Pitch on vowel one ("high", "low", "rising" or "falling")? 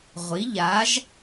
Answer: rising